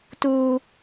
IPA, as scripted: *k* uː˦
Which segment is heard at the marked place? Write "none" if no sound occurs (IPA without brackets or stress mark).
t